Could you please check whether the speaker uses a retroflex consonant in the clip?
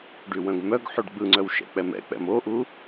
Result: yes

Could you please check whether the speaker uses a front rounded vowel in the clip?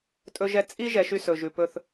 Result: yes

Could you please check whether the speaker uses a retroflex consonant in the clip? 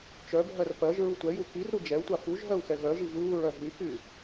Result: no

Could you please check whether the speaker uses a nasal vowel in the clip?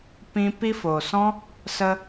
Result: yes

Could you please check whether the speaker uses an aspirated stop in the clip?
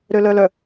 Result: no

